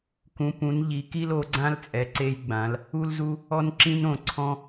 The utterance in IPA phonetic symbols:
k ũ˨˦ p ũ˨˦ n ʎ i˨˦ k i˦ l o˨˦ ɡ͡ǀ ã˦ l t͡sʼ ɛ˨˦ ǀ e˦ j ɡ͡b ã˨˦ l | u˦ l z u˦ | ɔ˦ n ǁ ĩ˦ n õ˨ ǀʰ ɔ̃˦

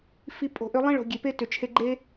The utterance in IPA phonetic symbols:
f i˧ pʼ o̤˨ ʔ ʏ˧ lˠ ẽ˦ ɭ o̤˨ ɡʲ e˨ p e˦ t ʏ˨ t͡ʃʰ e˧ ɡ͡ǃ e˦

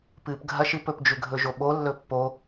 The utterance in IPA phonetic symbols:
p ɨ p ɡʱ ɐ ʃ ɨ p ɵ p d͡ʒ ʉ ɡʱ ɵ ʒ o ɓ o lː ɵ pː o

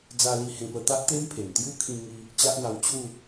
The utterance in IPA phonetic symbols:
d͡z a˧ l i˧ h ẽ˧ p ə˧ t̪ a˦ ʔ t̪ e˦ m pʰ e˨˩ m t̪ j u˦ kʰ ĩ˧ ŋ i˧ | t͡ɕ a˦ ʔ n̪ a˧ w t͡ɕʰ u˥˧

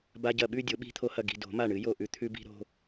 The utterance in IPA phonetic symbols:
b a˧ ɟ ɐ˧˩ ɓ ʉ˥˧ dʲ o˨˩˦ ɓ i̤˧ t̪ʰ o˧ h ɐ˧˩ ɡ i̤˧˩ d o̤˨˩˦ m a˧˩ ɳ ɨ˨˩˦ j o˧˩ ʔ ʉ˧ t̪ʰ ʉ˧ b i̤˧ ɾ o̤˧

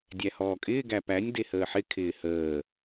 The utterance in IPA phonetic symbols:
dʲ æ h ɔː kʼ ɪː ɡ æ p æ nʲ d e h əː ħ ɪ kʰ ɪː h əː

